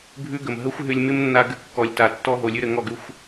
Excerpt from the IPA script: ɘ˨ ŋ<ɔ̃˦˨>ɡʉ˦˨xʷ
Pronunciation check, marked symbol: incorrect: ɔ˦˨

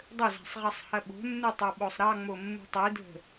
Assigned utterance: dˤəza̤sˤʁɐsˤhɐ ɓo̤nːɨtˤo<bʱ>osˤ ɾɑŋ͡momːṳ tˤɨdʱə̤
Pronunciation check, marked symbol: incorrect: ɓ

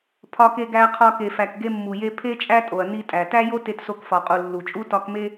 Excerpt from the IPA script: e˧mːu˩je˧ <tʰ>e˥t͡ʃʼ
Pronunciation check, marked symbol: incorrect: pʰ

